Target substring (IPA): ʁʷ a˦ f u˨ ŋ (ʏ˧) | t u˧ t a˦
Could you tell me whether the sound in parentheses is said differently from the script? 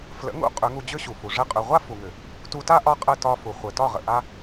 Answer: yes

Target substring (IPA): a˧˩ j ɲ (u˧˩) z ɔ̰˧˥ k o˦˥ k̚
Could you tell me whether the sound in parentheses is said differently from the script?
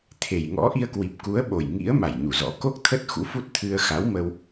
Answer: no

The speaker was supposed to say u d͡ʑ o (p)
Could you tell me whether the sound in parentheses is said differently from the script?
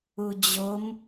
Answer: yes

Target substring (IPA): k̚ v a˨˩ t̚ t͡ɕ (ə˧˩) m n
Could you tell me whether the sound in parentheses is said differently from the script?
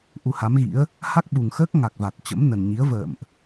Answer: yes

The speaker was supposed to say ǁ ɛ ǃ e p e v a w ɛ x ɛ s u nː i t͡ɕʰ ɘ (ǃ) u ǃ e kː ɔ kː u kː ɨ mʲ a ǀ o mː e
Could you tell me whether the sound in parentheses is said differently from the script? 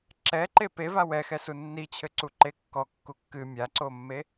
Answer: yes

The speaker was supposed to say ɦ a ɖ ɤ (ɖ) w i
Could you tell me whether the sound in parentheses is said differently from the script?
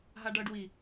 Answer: no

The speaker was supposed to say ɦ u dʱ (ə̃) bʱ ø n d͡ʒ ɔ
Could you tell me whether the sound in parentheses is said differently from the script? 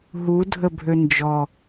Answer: yes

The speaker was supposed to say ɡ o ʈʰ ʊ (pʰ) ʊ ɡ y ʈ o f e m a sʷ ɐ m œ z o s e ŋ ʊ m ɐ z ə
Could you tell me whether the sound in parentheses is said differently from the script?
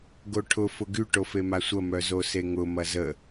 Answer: yes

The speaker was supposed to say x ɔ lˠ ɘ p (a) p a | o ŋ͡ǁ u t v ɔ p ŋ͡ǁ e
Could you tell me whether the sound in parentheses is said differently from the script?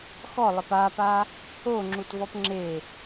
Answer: no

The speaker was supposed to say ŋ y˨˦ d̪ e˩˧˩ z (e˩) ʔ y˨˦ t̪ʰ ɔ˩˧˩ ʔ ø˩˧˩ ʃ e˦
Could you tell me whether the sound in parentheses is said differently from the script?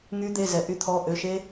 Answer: yes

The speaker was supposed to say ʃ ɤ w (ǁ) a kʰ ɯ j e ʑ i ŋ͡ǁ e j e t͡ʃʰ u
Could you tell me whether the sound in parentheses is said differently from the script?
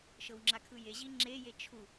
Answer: yes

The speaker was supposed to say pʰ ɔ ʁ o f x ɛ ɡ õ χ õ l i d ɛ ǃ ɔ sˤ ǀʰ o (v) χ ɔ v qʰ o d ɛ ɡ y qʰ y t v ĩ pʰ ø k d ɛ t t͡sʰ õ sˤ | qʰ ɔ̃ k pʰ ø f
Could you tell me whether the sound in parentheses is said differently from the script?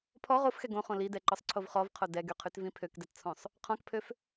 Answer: no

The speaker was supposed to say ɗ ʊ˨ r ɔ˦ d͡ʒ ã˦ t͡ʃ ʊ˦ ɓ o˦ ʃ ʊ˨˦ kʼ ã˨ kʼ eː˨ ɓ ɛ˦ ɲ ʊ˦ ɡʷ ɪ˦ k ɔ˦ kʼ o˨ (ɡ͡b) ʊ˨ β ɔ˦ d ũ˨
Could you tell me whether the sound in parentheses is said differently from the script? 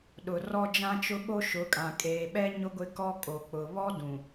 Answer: yes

